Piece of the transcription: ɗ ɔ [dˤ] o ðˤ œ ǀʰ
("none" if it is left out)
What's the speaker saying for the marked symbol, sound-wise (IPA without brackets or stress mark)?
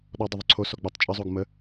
dˤ